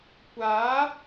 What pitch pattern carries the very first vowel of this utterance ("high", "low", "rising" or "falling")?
rising